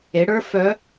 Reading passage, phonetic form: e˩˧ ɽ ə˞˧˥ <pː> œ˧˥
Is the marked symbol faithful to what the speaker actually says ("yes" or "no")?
no